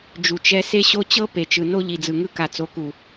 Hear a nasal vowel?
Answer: no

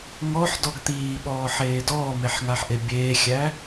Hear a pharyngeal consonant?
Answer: yes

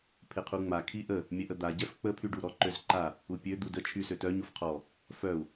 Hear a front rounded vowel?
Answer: yes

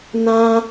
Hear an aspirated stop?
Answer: no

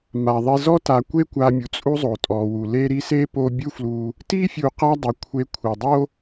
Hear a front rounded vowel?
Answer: no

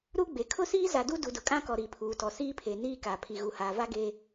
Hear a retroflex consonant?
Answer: no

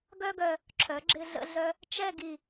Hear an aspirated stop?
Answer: yes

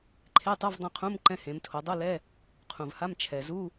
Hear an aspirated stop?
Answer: yes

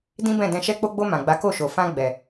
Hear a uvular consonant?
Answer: no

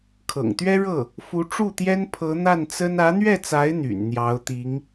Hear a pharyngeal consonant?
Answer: no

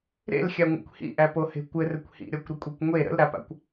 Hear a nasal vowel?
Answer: no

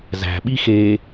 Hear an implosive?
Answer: yes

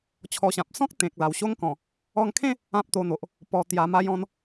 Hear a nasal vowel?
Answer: yes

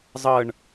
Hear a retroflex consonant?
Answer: yes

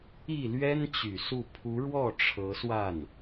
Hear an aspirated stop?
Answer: yes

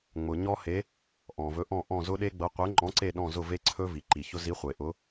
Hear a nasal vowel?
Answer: yes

